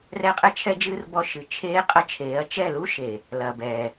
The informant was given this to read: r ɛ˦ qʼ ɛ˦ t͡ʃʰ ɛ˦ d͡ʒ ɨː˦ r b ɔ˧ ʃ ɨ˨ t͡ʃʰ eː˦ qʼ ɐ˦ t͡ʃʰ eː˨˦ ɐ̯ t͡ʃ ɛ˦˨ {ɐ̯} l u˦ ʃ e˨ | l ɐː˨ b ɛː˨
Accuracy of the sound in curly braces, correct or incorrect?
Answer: incorrect